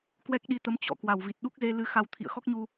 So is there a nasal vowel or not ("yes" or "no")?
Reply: no